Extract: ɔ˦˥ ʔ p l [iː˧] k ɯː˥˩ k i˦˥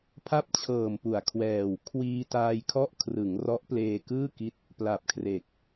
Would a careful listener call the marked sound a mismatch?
yes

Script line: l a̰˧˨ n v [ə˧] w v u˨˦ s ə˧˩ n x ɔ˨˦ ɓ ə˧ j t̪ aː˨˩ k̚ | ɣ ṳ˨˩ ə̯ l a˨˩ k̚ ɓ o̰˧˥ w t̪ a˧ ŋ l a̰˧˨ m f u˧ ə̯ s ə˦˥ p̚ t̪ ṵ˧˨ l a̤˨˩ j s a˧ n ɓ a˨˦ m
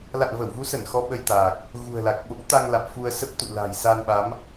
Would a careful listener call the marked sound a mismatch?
yes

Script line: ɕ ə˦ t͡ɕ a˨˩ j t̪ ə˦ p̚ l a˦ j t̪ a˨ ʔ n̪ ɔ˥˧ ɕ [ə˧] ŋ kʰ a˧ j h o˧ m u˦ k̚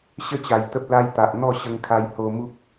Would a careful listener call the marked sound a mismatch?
no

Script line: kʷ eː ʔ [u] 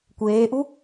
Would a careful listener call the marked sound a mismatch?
no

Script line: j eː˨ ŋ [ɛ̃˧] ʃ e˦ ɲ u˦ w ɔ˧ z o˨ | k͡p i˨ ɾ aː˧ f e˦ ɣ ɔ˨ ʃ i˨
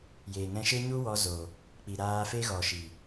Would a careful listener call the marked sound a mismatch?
no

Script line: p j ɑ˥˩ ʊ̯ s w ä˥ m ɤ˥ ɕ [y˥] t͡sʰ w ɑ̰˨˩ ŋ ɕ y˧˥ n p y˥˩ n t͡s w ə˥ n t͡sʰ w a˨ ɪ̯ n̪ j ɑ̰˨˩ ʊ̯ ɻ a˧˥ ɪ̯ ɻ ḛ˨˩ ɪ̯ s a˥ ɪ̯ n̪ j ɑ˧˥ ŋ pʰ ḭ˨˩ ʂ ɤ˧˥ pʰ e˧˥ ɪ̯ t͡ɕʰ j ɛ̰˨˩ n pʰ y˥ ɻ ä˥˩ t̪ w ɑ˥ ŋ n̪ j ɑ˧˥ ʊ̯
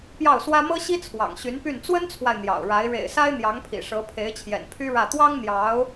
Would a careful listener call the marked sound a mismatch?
yes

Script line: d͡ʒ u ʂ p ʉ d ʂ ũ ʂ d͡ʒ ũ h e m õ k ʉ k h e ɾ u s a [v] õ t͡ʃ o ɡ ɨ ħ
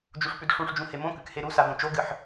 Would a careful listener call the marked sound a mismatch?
no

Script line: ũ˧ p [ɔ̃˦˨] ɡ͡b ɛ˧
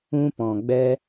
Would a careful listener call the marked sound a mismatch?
yes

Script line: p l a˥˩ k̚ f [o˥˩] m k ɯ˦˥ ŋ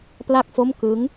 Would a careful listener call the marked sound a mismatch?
no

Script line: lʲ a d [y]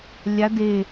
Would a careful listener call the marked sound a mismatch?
yes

